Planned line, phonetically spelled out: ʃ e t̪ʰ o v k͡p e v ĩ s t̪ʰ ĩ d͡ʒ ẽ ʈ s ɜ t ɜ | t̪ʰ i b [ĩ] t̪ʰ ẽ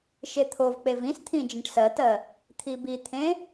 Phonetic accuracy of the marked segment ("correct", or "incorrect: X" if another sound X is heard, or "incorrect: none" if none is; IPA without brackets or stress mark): incorrect: i